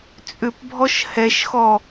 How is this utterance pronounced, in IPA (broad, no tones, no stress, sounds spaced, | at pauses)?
t͡sʼ ʏ p bʱ ɔ ʃ h ɛ ʃ x ɔ